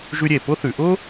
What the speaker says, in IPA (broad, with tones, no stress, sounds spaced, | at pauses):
ʒ ʉ˧ ɾʲ e˩ p ʊ˥ θ ʉ˩˧ ʔ ʊ˥